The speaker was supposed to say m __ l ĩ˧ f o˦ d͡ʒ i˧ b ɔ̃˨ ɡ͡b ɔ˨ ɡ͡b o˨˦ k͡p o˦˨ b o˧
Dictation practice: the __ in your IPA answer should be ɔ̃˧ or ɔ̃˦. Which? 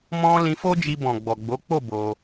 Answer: ɔ̃˧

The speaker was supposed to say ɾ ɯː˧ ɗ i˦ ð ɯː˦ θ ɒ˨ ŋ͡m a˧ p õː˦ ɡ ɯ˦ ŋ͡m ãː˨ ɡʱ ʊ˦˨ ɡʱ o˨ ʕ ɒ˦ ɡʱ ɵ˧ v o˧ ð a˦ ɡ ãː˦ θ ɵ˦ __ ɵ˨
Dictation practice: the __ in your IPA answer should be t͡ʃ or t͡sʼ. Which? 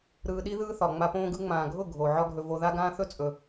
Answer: t͡sʼ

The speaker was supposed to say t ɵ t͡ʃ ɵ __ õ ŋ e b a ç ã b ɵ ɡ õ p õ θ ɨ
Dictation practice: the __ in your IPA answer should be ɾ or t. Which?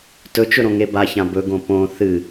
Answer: ɾ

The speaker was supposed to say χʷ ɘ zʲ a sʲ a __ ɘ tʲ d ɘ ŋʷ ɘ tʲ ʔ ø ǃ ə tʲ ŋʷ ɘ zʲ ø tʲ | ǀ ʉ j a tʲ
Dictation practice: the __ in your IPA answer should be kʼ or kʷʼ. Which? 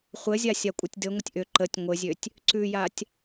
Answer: kʷʼ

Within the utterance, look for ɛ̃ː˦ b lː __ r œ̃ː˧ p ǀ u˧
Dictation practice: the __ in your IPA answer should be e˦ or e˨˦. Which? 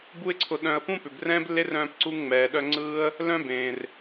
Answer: e˦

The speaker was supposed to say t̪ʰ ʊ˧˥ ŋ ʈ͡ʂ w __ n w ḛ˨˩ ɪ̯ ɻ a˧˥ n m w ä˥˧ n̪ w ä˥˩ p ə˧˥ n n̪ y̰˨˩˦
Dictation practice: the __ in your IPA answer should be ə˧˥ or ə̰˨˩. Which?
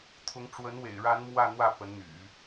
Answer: ə˧˥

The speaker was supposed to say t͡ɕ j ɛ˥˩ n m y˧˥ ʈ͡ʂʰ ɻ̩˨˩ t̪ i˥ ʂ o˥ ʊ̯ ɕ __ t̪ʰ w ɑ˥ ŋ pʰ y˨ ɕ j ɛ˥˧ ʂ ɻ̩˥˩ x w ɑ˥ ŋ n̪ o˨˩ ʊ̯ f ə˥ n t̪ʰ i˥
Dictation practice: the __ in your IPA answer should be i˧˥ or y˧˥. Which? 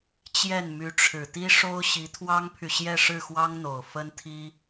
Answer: i˧˥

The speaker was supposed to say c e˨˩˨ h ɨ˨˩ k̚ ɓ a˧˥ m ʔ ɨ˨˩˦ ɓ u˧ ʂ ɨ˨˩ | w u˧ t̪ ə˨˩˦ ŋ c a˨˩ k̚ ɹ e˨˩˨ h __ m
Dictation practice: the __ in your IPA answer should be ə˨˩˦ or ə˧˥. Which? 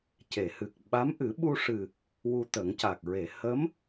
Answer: ə˧˥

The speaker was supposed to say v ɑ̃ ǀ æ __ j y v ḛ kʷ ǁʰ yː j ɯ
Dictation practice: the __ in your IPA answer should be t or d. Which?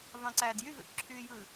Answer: d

